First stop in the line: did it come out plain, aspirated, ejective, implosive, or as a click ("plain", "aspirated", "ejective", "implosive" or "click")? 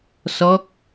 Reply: plain